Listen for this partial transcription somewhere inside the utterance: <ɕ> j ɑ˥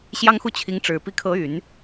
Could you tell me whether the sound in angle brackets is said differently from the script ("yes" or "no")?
no